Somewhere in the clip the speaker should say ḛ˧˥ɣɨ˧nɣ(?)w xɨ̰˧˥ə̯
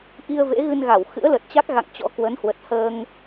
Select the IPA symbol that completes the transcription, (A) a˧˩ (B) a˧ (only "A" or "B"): A